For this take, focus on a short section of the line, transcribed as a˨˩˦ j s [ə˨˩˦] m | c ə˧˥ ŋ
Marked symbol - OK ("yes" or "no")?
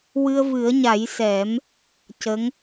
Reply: no